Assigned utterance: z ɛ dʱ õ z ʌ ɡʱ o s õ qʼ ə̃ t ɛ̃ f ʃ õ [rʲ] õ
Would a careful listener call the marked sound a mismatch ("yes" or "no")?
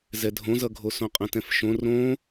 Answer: yes